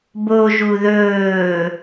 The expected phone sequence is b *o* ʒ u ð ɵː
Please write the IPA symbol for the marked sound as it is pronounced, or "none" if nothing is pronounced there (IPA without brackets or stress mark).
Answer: o